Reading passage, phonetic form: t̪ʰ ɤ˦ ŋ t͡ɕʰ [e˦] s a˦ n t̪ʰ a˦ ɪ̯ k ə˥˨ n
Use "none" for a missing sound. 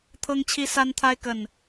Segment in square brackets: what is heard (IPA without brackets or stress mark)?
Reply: i˦